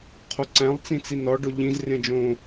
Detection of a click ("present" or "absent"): present